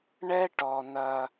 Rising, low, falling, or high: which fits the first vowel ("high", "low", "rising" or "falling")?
high